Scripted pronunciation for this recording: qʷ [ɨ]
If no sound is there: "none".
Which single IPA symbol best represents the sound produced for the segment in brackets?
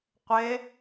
ɪ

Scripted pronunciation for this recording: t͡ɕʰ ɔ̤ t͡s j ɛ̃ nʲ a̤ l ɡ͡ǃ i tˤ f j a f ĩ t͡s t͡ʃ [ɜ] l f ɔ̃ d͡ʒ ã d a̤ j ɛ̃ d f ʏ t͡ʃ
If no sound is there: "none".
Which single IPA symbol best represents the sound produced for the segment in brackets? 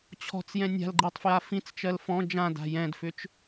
ɜ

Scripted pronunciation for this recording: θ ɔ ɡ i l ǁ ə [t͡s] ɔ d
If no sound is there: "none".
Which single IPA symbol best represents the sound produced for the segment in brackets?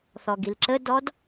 d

